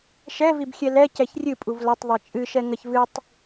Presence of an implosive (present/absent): absent